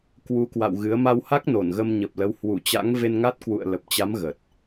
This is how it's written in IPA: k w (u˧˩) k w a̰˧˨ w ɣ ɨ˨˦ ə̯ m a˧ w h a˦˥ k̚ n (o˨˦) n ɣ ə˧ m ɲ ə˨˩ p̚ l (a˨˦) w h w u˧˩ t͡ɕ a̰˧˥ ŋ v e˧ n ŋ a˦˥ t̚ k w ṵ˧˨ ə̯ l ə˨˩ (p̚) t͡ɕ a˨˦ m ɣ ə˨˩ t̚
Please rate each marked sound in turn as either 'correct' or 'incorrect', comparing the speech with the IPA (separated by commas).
incorrect, incorrect, incorrect, correct